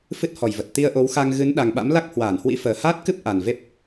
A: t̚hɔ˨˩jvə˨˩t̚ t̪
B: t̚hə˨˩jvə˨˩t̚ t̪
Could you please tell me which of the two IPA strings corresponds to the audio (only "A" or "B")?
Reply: A